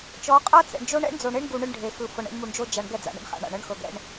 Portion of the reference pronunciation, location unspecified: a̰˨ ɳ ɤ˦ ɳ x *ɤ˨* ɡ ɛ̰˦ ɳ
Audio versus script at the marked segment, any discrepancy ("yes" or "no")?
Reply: no